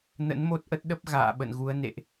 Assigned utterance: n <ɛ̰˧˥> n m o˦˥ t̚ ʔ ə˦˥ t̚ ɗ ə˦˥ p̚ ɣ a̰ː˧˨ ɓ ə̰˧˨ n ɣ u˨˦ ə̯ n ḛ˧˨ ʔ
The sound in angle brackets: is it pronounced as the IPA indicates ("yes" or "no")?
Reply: no